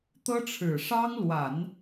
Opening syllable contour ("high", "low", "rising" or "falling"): high